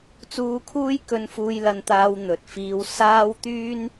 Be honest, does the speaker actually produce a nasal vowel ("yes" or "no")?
no